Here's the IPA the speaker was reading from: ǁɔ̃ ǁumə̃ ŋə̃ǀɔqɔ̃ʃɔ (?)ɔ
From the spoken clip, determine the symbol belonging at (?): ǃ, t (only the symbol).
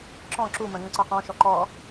ǃ